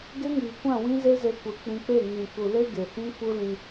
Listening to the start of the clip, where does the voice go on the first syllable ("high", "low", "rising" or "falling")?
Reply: high